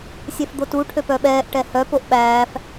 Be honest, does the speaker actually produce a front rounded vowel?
yes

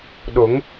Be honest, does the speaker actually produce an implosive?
yes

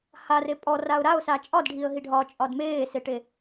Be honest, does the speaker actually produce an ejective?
yes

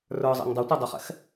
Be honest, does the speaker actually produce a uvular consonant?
yes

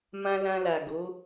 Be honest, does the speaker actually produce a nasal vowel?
yes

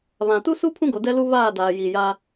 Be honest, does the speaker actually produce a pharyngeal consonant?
no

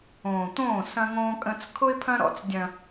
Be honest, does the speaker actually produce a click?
no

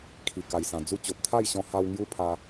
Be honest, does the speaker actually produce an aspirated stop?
yes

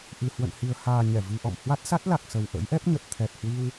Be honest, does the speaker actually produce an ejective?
no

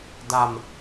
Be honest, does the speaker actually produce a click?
no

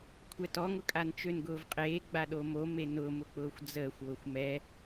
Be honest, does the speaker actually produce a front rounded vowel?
yes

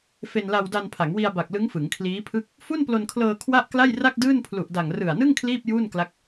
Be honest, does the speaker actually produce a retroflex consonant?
no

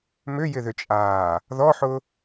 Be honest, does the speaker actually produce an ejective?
yes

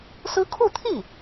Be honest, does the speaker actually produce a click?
no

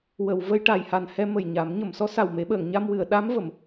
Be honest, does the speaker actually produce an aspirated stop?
no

